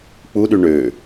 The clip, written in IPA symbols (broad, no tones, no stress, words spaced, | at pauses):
k͡puɗy ɳø